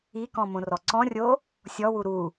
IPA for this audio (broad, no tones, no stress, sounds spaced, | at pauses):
i k ɔ̃ m õ r ɔ ǀ ɔ̃ rʲ o | sʲ ɔ w u ɾ u